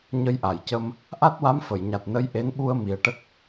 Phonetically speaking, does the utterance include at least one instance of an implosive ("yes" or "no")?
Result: yes